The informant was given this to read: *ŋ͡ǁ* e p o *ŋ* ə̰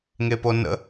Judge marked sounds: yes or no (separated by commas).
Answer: no, no